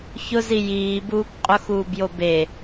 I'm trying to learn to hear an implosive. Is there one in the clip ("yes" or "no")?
no